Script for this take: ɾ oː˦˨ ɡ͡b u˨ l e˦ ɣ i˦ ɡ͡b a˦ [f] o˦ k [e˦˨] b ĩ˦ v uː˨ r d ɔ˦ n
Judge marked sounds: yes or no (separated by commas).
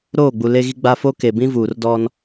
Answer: yes, no